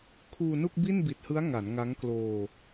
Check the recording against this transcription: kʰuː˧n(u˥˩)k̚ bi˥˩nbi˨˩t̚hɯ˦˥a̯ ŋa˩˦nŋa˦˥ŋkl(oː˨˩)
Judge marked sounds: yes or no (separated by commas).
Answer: yes, no